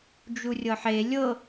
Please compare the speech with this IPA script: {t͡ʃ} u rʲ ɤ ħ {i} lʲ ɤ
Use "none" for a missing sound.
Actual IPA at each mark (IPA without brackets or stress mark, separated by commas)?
d͡ʒ, e